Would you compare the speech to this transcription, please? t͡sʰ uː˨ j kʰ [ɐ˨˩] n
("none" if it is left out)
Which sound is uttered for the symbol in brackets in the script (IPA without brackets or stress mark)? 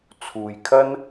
ɐ˥